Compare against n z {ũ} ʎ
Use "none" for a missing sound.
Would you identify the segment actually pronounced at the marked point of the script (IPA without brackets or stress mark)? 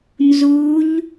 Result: u